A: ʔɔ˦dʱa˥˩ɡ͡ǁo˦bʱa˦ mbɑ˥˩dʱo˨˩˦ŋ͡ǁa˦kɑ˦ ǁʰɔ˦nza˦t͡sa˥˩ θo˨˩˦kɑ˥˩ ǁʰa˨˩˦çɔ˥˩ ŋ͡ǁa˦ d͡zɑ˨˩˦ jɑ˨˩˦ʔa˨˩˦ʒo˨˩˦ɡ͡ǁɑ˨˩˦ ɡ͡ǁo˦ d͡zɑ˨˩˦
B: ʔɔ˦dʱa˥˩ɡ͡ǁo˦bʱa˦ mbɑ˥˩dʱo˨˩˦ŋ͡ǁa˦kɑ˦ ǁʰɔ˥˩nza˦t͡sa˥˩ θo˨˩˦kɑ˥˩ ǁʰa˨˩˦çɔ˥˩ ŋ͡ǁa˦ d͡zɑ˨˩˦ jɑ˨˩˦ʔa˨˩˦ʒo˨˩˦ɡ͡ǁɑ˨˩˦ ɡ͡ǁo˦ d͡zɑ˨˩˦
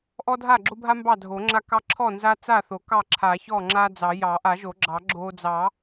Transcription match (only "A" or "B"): B